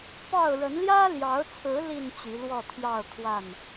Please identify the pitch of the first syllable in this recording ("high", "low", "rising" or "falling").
falling